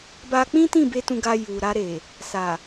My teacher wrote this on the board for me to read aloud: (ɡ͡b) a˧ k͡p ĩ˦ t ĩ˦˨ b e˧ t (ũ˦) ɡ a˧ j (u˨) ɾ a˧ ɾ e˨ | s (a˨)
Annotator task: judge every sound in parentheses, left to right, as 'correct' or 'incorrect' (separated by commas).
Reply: incorrect, incorrect, correct, correct